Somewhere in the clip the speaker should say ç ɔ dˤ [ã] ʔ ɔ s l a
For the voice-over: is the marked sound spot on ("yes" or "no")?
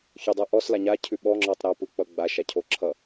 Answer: no